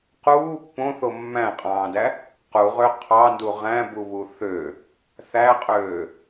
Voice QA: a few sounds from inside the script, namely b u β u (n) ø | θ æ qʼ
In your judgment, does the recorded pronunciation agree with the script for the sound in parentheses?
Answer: no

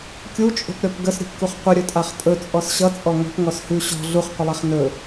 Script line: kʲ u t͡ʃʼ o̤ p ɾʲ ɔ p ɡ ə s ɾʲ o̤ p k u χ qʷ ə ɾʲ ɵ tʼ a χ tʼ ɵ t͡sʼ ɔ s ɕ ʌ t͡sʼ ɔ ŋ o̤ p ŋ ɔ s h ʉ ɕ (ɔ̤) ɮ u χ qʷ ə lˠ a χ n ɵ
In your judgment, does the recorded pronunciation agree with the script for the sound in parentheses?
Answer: yes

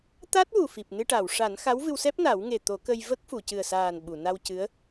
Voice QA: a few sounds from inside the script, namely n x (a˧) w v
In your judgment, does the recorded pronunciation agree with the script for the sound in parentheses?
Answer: no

